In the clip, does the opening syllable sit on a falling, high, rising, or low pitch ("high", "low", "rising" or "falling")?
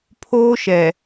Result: high